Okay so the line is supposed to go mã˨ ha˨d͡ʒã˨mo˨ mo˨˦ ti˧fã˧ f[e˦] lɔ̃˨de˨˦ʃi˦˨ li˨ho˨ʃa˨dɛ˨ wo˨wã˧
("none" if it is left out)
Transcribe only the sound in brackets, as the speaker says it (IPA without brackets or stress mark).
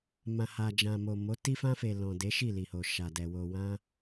e˨